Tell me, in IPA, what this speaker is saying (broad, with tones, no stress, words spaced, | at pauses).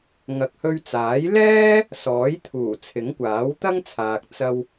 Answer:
ŋɐ˨k̚hɵ˧ɥt͡saː˨˥j lɛː˥ | sɔː˨˥jt̪ʰuː˨˩t͡sʰɪ˨˥ŋkʷaː˨˥w t̪ɐ˥ŋ t͡sʰaː˨k̚ t͡sɐ˧w